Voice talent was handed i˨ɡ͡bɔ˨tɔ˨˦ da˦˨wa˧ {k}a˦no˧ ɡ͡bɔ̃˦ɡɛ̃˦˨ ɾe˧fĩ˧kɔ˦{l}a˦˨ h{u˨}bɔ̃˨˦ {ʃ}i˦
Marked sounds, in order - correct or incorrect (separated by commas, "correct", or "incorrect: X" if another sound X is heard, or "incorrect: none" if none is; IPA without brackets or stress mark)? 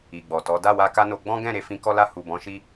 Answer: correct, correct, correct, correct